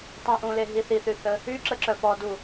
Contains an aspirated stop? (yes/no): no